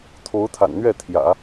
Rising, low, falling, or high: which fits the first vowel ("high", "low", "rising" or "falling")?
rising